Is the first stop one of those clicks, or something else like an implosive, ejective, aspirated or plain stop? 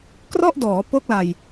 plain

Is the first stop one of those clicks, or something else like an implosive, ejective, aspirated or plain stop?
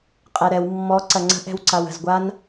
ejective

